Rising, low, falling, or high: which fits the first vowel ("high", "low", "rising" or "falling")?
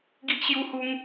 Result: high